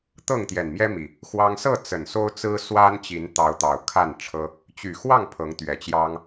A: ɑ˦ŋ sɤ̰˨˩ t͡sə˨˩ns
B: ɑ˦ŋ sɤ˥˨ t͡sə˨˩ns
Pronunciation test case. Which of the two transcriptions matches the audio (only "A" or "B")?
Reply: B